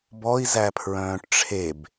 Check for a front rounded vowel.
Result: present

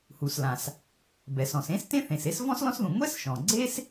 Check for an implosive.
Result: absent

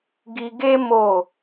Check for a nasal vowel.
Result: absent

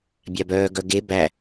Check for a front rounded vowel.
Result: present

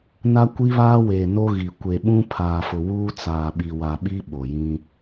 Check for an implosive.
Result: present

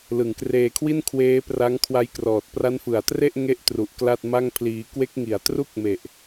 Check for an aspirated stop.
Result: present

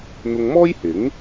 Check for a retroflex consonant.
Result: absent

